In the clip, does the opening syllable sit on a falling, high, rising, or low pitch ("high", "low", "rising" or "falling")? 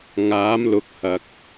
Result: rising